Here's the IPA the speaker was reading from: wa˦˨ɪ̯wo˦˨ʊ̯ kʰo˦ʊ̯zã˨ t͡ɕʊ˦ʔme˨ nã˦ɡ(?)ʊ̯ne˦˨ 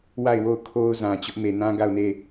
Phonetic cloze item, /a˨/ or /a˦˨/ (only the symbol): a˦˨